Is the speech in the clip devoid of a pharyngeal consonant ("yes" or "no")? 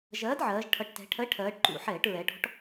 no